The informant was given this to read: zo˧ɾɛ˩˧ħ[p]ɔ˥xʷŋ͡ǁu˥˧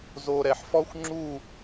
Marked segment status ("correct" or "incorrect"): incorrect